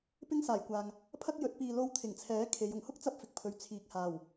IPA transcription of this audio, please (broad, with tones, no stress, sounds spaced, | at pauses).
p ɪ˥ ŋ s aː˨˩ j kʷ aː˨ ŋ | pʰ ɐ˥ k̚ j ɵ˨˥ t̚ p iː˨ l o˧ w t̪ʰ ɪ˨˩ ŋ t͡sʰ ɛː˨˥ kʰ e˨˧ j ʊ˨˩ ŋ h ʊ˥ k̚ t͡s ɐ˧ p̚ f ɪ˨ k̚ pʰ ɵ˨˧ ɥ t͡sʰ iː˨ k̚ h aː˨˩ w